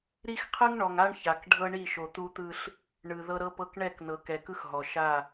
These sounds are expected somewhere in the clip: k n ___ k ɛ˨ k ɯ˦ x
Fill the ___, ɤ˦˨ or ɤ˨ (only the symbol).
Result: ɤ˨